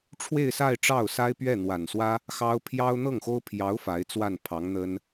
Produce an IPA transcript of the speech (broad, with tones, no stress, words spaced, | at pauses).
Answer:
ʈ͡ʂʰwe˥˧ɪ̯sa˥˧ɪ̯ ʈ͡ʂɑ˥˩ʊ̯ sa˥ɪ̯pɥɛ˥˩ n̪wa˨˩nswä˥ | xɑ˥ʊ̯ pʰjɑ˥ʊ̯ n̪ɤ˥˩ŋxo˥ʊ̯ pʰjɑ˧˥ʊ̯ fa˧˥ɪ̯t͡swa˥˩npʰɑ˧˥ŋ n̪ə˥n